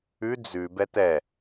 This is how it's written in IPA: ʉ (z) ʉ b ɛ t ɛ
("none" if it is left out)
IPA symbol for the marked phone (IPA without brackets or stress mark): d͡z